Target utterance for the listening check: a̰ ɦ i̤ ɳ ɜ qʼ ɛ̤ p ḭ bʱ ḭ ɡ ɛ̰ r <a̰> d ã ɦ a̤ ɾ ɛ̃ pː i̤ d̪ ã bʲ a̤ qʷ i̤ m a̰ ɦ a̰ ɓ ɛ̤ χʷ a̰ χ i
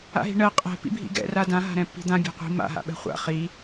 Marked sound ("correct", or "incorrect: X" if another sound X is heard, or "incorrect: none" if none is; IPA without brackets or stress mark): incorrect: a